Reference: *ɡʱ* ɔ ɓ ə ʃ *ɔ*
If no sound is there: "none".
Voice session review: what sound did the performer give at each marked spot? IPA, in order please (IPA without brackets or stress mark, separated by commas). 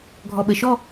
ɡʱ, ɔ